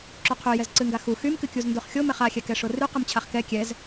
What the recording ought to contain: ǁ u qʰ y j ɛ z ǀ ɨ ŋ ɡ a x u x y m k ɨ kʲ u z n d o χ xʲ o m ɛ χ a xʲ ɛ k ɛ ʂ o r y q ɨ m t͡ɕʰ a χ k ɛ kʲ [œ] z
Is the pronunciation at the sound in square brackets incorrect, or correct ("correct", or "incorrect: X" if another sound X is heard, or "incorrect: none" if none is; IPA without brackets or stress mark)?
incorrect: ɛ